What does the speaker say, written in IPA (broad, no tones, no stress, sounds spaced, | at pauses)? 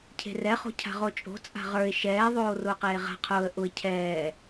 cʰ e̤ r ɛ χ o̤ cʰ a̤ ʁ o t͡ʃʼ o̤ t͡sʼ a̤ ʁ ə˞ ɪ̯ ʃ ɛː ðˤ oː r ʊː q eː ʁ a̤ qʰ ʊː ə̯ ʔ ʊ ɪ̯ cʰ ɛː